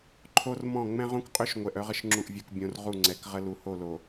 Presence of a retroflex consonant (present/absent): absent